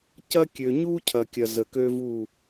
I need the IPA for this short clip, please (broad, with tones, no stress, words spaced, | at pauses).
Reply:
cɐ˦kʲø˨ ɲu˦cʰɐ˨kʲɐ˨ zə˨kø˦vu˦˨